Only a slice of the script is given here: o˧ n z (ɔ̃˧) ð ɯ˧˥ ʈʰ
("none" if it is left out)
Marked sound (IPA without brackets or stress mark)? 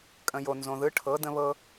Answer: õ˧